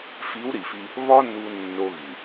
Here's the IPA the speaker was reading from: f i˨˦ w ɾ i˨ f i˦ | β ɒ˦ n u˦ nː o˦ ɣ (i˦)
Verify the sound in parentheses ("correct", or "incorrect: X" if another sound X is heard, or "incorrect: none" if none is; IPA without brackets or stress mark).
incorrect: i˨